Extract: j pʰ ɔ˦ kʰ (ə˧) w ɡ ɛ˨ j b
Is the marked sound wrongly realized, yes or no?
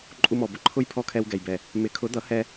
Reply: yes